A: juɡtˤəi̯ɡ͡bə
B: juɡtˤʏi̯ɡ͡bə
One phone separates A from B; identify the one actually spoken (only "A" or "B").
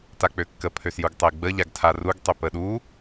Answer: A